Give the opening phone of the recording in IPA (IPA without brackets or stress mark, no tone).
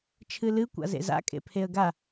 t͡ʃʰ